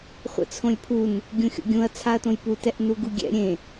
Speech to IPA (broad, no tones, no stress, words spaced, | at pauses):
χʷə̰t͡sʰõlʲpʰun | ɡʲũxʲo̰ɡʲũɐ̯ t͡sʰaɐ̯tõjpu tɛʔnuɡuɡʲɛ̰ ɾʲẽ